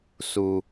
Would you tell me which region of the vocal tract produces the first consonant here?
tongue tip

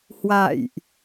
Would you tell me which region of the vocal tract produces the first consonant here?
throat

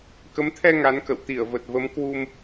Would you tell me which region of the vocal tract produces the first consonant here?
velum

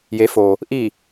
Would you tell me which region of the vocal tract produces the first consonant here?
palate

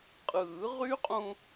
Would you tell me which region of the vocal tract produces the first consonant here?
uvula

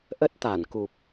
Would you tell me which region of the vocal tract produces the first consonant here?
throat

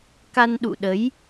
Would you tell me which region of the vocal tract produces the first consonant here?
velum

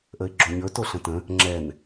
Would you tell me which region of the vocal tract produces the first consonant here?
throat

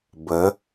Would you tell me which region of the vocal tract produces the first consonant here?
lips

